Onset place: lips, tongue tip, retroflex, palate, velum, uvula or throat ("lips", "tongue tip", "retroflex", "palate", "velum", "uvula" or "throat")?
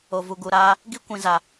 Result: lips